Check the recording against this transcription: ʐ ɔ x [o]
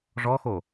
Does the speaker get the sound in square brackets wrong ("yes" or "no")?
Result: no